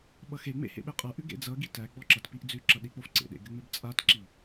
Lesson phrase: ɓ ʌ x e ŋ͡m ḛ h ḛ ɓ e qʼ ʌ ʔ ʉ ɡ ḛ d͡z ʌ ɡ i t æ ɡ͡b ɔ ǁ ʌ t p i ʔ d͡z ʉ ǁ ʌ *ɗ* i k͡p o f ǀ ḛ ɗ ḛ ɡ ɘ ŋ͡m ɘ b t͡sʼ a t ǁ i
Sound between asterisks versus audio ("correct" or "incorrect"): correct